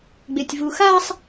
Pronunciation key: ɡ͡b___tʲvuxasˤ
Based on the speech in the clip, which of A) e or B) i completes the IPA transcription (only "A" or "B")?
A